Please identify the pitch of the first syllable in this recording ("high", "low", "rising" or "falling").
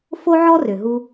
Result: high